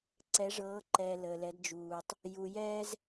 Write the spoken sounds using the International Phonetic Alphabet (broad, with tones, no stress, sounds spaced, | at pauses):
ǀ ɛ˨˦ ʐ ɤː˨˦ ǃ ɛː˨ l əː˨ l ɛ˨˦ d d͡ʒ uː˨ tˤ | j u˨ j ɛː˦ z